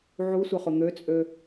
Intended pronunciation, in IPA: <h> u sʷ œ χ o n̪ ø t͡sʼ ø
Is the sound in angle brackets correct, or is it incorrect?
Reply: incorrect